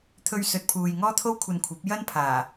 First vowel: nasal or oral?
oral